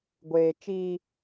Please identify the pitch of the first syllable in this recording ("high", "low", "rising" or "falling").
high